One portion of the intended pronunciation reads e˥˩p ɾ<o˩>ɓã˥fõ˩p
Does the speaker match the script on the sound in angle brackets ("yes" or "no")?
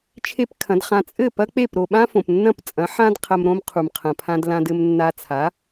yes